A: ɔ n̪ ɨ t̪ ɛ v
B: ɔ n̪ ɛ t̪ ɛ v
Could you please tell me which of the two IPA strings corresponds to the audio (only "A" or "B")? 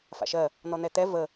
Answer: B